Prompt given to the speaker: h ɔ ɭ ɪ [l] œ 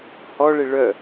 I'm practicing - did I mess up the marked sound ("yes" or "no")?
yes